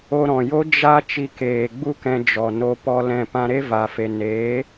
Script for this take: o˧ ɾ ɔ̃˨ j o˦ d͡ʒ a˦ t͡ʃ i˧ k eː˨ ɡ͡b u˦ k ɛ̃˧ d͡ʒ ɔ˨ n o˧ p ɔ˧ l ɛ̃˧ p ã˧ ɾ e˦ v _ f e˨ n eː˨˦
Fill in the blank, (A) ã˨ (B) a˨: B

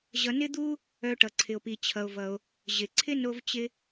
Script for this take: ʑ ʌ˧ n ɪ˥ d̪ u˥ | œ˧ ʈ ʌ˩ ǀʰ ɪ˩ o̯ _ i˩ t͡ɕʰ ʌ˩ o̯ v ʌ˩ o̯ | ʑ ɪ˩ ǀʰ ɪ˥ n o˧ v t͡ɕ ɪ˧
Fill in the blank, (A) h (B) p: B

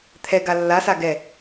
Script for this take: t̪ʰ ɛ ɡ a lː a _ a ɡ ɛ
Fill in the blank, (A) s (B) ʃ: A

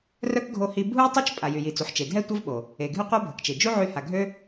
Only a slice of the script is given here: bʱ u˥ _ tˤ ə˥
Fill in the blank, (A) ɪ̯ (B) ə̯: B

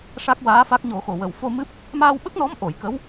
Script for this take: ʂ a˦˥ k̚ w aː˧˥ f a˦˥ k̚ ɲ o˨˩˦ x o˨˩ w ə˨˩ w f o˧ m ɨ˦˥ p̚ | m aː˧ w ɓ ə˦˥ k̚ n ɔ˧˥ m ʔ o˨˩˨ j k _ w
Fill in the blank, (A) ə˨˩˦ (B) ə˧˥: B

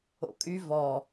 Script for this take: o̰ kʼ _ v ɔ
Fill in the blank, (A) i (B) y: B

